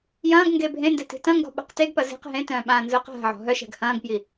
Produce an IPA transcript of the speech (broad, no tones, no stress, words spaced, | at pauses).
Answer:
jɐ̃ːɡ ŋɡebʱẽndɛ ti̤tɐ̃ŋɡɔ̤ ɓa̤qteɡpɐ ze̤q ɦẽtœ̃ː ɓãːnzʊːqɦa̤ʕɔ̤ ɦœʃɛ̤ɡ hɐ̃ːɡpji